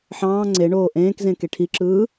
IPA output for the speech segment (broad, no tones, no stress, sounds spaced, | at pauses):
ħ ɑ̃ː ŋ͡ǀ e ɳ oː ʔ ẽː k z ẽ k e ʈʰ i ǁ ɯː